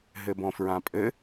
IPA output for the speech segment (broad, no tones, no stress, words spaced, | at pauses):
ɦɘbɔ̃fɹãpʼɘ